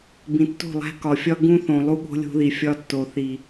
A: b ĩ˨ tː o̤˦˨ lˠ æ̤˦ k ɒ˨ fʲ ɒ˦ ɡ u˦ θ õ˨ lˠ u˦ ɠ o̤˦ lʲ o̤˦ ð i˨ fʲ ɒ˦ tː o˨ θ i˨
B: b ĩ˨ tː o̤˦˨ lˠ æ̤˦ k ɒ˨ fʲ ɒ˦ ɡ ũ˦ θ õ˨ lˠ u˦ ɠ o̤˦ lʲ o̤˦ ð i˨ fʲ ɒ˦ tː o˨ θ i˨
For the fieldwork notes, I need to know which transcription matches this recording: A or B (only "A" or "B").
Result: B